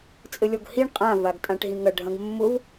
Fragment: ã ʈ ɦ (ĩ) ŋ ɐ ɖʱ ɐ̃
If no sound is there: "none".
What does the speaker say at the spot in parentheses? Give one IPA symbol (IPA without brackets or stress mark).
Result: ĩ